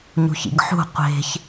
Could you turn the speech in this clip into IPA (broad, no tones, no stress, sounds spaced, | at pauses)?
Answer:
ɲ ṳ ç ḭ ɡ ħ ṳ qʷ e̤ ç